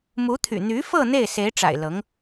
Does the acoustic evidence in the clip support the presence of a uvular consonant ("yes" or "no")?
no